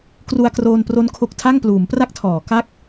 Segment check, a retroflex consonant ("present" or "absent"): absent